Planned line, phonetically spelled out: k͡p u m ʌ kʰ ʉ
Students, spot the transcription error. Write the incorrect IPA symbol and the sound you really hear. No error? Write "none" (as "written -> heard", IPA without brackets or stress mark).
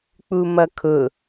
ʉ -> ʊ